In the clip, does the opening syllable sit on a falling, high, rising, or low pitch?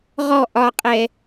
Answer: falling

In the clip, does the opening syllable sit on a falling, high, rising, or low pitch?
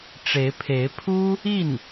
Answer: rising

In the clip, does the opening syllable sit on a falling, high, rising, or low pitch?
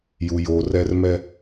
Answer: low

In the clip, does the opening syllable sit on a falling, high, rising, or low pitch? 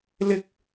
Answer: high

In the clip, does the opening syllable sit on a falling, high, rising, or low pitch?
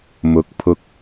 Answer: rising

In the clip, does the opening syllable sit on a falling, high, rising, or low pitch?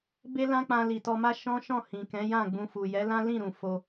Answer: high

